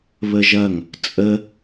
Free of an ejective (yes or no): no